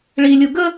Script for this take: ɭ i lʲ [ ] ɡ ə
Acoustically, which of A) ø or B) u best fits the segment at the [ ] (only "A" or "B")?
B